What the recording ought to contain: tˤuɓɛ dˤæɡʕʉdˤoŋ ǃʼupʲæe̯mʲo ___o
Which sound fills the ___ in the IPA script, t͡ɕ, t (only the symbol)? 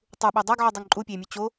t͡ɕ